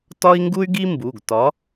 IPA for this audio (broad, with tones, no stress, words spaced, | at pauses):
tɒ˥i̯ŋɡu˥y̯ɡi˥mbu˩˧˩ɡ tɒ˨˥